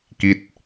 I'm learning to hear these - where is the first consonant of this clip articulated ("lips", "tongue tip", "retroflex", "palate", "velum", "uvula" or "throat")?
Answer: velum